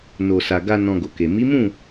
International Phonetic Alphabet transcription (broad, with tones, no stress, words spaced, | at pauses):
no˨sa˨ɡa˧ nɔ̃˧ɡo˨ke˨ mi˨˦mũ˦˨